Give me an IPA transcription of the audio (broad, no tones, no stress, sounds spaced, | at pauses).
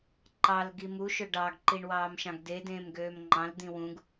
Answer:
ǃ ɑ l ɡ i m u ʃ ø ɖ ɑ ɡ ǃ i ɳ w ɑː m ʃ ɑ̃ ɡ d e d ẽː m ɡ øː m ŋ͡ǃ ɑ̃ l d̪ ĩ w ũ ɡ